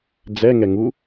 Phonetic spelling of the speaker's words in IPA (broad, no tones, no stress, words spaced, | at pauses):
d͡zɛ ŋɛŋu